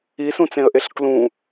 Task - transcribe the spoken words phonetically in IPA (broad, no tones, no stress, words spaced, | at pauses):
isũt͡sẽə̯ʔeɬ klũ